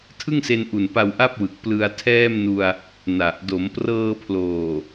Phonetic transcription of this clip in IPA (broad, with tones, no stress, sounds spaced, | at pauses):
tʰ ɯ˥˩ ŋ s e˧ n ʔ u˨˩ n p a˧ w ʔ a˥˩ p̚ w ɯ˨˩ k̚ p l ɯ˧ a̯ tʰ ɛː˥˩ m n u˧ a̯ | n a˨˩ ʔ d o˩˦ m p r ɤː˧ pʰ l oː˨˩